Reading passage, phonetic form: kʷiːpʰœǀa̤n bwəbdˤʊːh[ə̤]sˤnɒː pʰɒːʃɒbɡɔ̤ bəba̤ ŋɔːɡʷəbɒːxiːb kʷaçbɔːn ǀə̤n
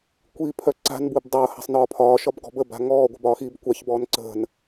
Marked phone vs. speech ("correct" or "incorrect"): incorrect